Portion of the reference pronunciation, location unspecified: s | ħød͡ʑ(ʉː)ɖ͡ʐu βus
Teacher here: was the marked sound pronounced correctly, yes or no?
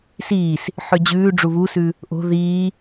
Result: yes